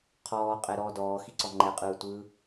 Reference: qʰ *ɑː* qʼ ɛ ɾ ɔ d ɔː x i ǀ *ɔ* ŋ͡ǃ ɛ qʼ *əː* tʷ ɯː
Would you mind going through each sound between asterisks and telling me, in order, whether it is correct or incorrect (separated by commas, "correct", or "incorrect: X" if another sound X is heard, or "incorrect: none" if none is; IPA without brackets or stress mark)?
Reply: incorrect: ɔː, correct, incorrect: ɯː